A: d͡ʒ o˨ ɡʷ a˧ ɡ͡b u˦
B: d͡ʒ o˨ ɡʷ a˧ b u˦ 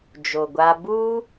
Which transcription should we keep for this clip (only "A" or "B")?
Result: B